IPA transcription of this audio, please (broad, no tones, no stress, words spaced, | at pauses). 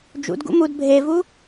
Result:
d͡ʒṵdɡṵ mud bʱevu